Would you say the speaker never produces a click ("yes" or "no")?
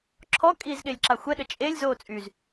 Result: no